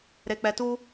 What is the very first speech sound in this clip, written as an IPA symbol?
ɾ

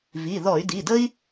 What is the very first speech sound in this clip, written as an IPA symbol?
v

